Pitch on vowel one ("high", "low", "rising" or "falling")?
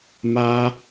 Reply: high